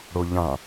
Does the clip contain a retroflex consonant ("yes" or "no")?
yes